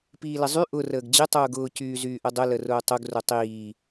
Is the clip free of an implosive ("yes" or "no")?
yes